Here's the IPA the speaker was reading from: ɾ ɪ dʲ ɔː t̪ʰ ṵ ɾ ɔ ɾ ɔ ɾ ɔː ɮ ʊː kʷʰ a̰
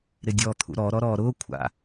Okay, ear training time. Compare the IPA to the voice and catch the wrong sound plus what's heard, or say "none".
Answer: ɮ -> ɾ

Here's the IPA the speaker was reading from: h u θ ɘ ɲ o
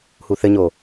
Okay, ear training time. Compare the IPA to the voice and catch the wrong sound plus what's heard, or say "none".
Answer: none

